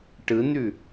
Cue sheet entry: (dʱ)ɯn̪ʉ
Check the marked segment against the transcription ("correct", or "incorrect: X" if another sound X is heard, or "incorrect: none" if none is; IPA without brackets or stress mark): incorrect: ʈ